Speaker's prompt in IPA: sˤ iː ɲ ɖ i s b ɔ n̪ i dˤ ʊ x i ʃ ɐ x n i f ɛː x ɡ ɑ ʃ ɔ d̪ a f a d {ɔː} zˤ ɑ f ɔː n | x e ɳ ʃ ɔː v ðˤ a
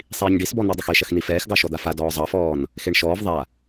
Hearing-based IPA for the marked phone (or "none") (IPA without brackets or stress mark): ɔː